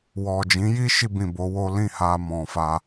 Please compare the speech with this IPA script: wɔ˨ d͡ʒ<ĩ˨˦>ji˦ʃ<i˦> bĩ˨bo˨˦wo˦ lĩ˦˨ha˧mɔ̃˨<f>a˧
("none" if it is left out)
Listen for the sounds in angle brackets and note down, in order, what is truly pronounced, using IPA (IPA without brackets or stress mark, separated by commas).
ĩ˨˦, i˧, f